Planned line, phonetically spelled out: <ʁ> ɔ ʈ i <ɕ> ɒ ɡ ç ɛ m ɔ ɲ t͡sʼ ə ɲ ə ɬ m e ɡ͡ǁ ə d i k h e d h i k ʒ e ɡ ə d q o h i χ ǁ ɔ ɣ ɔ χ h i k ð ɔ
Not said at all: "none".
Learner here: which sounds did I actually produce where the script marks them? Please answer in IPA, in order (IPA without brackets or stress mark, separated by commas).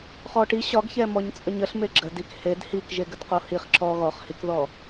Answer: χ, ɕ